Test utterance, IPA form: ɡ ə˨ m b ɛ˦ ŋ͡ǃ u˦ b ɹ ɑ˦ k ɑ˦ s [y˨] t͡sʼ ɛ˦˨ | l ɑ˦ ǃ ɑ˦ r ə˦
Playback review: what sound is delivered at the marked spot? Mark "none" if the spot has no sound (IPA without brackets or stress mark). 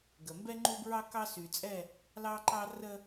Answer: y˨